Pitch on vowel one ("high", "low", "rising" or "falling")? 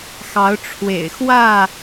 rising